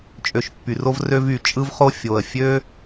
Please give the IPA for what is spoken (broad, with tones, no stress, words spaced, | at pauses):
t͡ʃʼø˨ʃpːy˩ro˦vrø˦v y˩ t͡ʃʼɯ˦vχo˦ fʲo˩ə̯ fʲø˥